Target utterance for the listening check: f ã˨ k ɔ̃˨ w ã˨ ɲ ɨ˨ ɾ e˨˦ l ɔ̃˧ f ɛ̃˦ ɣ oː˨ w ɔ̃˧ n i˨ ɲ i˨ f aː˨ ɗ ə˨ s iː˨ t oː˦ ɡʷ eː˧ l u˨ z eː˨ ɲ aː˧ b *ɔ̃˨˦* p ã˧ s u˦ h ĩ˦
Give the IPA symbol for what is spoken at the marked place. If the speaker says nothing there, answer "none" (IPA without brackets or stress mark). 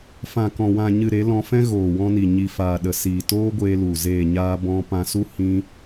ɔ̃˧